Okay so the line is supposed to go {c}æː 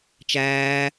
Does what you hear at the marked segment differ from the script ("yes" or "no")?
yes